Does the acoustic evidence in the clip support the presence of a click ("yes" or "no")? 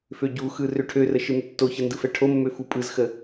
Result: no